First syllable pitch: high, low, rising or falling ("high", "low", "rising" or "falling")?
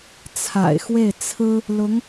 low